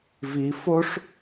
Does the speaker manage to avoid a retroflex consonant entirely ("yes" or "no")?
no